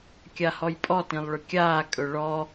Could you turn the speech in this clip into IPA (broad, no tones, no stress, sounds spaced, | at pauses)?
kʲ a h ɔ j pʼ ɔ t ĩ lˠ ɭ ɵ kʲ aː kʼ ɵ ɭ ɔ